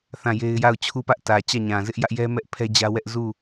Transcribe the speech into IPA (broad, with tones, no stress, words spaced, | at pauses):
θã˦˨je˦ɪ̯ ja˦˨ʊ̯t͡ɕʰu˦pä˦ʔ tä˨t͡ɕä˦˨ɲã˨ zɪ˦ʔjä˦ʔjɛ˦mɛ˦ʔ pʰɛ˦d͡ʑä˦wɛ˦ʔ zu˦˨